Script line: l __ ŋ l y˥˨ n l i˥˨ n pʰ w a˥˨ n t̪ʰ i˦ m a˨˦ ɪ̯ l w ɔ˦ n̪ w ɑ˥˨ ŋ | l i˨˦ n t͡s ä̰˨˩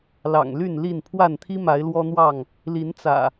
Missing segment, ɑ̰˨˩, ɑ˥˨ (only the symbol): ɑ̰˨˩